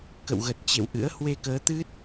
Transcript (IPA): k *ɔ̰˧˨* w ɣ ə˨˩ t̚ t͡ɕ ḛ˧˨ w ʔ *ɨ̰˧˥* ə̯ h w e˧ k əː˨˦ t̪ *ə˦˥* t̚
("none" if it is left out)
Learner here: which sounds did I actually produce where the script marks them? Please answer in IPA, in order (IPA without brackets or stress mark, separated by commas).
ə̰˧˨, ɨ̰˧˥, ɨ˦˥